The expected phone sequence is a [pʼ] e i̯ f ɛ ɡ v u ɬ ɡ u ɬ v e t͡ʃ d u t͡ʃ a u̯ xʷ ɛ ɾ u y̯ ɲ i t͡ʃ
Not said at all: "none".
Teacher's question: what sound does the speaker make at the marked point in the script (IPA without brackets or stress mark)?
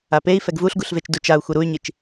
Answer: p